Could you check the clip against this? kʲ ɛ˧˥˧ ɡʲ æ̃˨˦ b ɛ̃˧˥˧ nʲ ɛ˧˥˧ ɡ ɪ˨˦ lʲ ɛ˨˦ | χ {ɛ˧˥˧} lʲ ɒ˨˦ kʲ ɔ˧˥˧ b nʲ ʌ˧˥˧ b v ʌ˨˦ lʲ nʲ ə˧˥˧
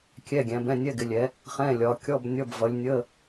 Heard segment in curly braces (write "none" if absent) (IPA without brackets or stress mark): ɛ̃˧˥˧